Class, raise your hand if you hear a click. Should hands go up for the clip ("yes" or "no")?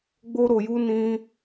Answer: no